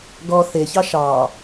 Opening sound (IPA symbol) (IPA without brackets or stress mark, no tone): ɡ